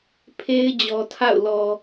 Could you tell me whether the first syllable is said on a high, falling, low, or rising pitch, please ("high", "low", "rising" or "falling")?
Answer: high